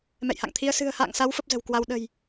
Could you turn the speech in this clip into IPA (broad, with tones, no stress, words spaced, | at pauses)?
mɛ̰˧˨jha̰˧˨ŋt̪ʰi˧ə̯ sɨ̤˨˩ə̯ha̰ː˧˨ŋsa˨˦w fə˦˥p̚zə̤˨˩w kwa˧wɗə̤˨˩j